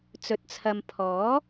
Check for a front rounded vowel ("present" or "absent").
absent